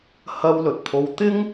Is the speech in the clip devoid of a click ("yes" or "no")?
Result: yes